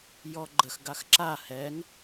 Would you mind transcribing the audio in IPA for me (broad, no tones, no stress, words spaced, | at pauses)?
jɔɡ͡ǃəx ɡaxǁa hɛŋ